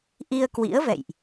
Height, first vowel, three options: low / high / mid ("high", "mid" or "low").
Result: high